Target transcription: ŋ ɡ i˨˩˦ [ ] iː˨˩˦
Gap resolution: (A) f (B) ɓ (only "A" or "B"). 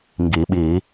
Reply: B